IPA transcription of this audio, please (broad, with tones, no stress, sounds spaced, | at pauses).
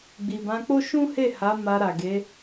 ɡ͡b i˨ b ã˧ k͡p o˦ ʃ ũ˦ h e˦˨ h a˨˦ m a˧ ɾ a˨ ɡ e˨˦